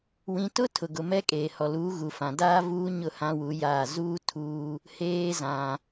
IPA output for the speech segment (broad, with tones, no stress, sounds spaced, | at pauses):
w ĩ˨ t ʊ˦ tʰ ʊ˨ ɡ ʊ˨ m ɛ˦ kʼ eː˨ h ɔ˨ l uː˨˦ ɣ u˨ f ã˨ d aː˦ v uː˦ ɲ ʊ˦˨ h ã˦ w u˨˦ j aː˦˨ z uː˦ tʰ uː˦ | h eː˨ z ã˨